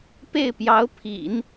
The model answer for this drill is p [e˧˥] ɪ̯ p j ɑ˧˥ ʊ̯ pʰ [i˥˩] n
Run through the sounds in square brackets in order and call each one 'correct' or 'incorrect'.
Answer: incorrect: e˥˩, incorrect: ḭ˨˩˦

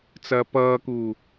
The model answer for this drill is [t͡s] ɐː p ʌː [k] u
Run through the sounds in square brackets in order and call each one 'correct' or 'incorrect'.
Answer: correct, correct

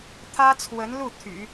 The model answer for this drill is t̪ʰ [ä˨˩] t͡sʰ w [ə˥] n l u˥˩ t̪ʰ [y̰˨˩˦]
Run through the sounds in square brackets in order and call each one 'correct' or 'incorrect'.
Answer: incorrect: ä˥, incorrect: ə˧˥, correct

